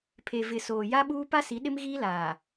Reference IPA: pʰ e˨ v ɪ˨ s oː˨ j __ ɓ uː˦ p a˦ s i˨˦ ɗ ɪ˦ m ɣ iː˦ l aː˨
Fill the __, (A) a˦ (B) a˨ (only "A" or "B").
A